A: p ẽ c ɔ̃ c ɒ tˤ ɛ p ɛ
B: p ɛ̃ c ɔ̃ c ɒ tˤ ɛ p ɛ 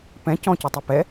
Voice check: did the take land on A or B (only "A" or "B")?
B